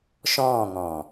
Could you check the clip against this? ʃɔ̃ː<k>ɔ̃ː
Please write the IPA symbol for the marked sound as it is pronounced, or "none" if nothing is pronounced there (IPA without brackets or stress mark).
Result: ŋ